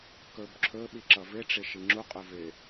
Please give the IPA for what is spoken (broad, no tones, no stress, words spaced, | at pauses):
kɵbǁʰɵ ɓiǁʌvɪ ʈ͡ʂɪʃiŋ͡ǁu qʼɵvɪ